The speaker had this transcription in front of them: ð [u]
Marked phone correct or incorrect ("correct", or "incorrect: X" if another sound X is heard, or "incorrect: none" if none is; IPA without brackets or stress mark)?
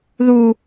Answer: correct